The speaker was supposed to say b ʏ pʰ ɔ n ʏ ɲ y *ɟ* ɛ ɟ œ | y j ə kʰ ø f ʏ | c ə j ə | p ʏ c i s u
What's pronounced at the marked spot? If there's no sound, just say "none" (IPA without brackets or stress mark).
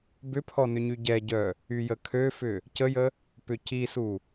ɟ